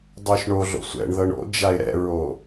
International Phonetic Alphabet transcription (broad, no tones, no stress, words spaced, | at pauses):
dˤoʃɳoɮo̰ sʷɛ̰ɳðɤɳ o̰ d͡ʒaɪ̯ɾɛ̰ɹo